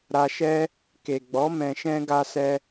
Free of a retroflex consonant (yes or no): yes